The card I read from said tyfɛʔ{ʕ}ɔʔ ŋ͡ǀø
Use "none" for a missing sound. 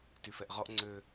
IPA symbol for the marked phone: ʁ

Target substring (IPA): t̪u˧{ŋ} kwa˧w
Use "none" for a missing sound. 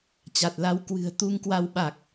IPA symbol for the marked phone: ŋ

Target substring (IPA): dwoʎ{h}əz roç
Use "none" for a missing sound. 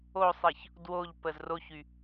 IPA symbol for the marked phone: p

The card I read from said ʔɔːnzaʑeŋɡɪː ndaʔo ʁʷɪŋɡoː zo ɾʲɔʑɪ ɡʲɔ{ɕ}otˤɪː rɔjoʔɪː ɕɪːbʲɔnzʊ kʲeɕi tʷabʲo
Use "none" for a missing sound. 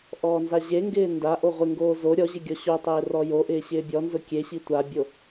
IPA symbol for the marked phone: ɕ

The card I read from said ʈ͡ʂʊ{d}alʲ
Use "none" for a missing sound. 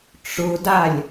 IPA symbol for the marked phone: d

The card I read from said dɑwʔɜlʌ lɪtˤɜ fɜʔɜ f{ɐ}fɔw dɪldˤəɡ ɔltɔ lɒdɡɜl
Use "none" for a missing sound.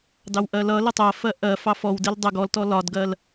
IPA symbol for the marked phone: ɑ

